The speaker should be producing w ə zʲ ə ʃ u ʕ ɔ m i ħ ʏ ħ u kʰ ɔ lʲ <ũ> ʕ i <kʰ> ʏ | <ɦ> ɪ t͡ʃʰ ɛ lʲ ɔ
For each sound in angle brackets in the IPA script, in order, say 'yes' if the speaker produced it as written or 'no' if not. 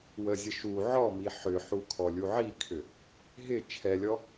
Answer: no, yes, yes

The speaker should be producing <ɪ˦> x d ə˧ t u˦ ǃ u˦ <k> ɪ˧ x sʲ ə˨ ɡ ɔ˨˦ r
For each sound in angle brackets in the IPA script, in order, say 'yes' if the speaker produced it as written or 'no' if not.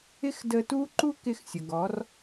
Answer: yes, yes

